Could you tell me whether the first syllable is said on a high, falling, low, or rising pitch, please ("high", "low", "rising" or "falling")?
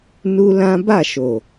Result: high